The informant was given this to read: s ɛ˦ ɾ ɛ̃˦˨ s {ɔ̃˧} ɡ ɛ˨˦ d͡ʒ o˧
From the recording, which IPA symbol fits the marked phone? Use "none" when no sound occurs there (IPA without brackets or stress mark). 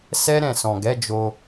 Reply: ɔ̃˨